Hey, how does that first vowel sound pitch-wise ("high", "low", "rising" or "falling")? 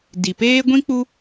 low